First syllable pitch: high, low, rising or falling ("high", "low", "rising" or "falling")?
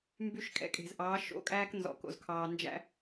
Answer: high